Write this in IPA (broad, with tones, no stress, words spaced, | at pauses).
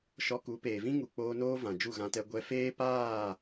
ʃɔ˧ku˨˦peː˨vĩ˦ ŋu˨k͡poː˧noː˦ vã˨d͡ʒu˦˨ɣã˧tɛ˧ ɡʷɛ˧feː˦ paː˦˨